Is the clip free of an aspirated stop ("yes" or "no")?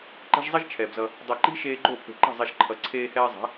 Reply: no